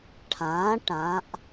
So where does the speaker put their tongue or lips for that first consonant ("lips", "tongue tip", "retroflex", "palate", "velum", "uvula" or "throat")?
retroflex